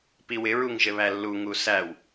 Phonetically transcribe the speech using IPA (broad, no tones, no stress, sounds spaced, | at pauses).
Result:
p i w ɪ ɹ u ŋ ʒ ɘ β æ lː u ŋ u s æ w